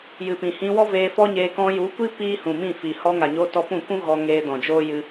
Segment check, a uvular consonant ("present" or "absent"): absent